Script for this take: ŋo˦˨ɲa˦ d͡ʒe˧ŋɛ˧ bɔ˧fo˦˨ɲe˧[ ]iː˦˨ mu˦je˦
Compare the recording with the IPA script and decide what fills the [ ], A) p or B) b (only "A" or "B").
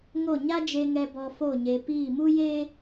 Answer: A